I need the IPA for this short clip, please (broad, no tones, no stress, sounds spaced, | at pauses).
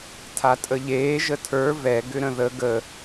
tʰ a tʼ ə ʎ eː ʒ ə tʰ ə˞ v ɛ ɡ ʏ ɾ ə̃ ð ə ɡ ə